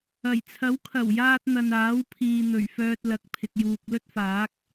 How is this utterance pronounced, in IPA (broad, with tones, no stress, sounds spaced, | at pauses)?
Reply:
ɐ˨˩ j t͡sʰ ɐ˨˥ w kʰ ɐ˨˩ w j aː˧ t̚ n̪ ɐ˨ n aː˨˥ w pʰ iː˨ n̪ ɵ˨˩ ɥ f œː˧ t̚ l ɐ˨ k̚ pʰ ɪ˨ k̚ j uː˨ k̚ l ɵ˥ t̚ f aː˨˥ k̚